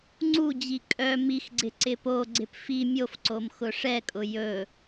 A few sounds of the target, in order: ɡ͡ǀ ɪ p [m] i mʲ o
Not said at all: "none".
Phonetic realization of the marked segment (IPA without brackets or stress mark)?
f